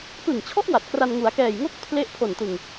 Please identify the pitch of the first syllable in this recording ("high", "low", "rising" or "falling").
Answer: low